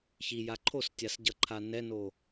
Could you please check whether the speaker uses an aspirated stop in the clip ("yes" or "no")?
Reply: yes